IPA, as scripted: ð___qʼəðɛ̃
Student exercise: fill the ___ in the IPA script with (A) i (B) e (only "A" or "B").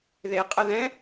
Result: B